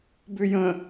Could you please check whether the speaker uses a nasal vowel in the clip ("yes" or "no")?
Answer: yes